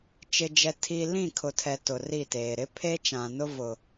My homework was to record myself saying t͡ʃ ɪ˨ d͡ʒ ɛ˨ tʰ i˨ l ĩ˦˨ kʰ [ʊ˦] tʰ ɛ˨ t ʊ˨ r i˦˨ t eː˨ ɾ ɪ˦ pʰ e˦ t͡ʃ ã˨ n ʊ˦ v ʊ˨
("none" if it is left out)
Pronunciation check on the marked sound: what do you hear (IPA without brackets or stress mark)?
ʊ˨